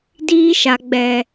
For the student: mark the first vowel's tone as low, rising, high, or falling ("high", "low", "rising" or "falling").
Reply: high